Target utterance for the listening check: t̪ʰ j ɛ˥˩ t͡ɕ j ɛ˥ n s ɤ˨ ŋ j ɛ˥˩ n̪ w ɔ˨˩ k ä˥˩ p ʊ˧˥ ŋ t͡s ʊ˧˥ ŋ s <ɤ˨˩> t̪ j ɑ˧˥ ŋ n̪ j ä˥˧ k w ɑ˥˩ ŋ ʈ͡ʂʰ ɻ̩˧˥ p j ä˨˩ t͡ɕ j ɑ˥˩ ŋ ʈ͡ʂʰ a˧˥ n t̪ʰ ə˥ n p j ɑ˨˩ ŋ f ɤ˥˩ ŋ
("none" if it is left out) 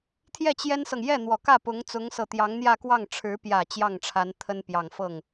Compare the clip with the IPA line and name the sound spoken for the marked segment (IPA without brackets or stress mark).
ɤ˨˩